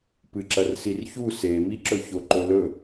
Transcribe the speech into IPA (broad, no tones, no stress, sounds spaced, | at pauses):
p ɨ ǁ ɐ r s i r ç u s e m i ǁ ɵ ç o ǃ ɵ l ɵ